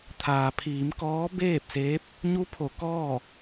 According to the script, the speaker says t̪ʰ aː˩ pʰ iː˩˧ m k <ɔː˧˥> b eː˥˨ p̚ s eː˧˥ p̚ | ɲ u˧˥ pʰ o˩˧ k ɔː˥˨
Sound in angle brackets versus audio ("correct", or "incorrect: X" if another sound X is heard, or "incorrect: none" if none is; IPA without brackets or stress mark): correct